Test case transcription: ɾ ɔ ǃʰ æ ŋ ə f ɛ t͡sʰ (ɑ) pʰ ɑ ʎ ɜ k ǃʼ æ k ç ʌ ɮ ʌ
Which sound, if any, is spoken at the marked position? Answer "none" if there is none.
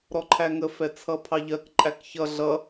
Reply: ʌ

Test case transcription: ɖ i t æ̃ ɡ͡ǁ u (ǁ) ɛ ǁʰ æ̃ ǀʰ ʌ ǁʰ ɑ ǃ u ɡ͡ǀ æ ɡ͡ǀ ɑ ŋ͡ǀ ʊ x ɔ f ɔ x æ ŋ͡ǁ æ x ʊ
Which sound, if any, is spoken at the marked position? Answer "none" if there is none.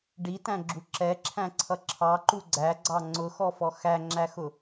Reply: ǁ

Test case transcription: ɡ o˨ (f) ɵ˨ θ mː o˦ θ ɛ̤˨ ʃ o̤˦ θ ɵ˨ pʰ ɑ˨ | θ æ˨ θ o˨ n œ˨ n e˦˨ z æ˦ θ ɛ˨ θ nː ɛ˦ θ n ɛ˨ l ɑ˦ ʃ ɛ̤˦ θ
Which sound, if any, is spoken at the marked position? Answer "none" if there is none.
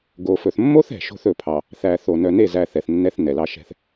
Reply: f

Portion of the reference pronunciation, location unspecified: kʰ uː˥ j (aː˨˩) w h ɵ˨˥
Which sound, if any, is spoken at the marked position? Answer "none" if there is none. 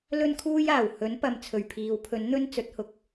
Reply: aː˨˩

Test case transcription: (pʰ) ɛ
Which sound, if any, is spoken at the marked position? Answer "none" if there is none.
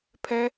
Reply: pʰ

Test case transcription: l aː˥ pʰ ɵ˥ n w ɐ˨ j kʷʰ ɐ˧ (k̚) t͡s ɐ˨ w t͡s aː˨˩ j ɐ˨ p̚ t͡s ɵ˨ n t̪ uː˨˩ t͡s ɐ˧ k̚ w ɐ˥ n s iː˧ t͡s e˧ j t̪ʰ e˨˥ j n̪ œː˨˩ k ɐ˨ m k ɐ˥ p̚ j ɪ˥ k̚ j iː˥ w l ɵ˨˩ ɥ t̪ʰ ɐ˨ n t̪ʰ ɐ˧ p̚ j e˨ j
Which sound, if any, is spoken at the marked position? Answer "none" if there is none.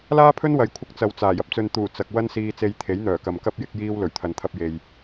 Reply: k̚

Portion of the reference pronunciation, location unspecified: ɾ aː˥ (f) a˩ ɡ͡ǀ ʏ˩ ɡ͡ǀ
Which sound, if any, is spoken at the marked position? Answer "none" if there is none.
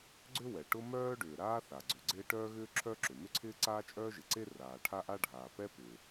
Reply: θ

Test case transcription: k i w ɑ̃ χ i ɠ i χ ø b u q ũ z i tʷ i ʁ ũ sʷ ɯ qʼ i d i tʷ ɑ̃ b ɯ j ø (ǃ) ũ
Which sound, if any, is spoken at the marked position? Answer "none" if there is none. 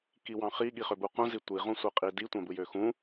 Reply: x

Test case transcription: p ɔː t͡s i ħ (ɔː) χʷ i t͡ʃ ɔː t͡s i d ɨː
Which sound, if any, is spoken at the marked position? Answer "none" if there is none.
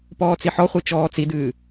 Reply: ɔ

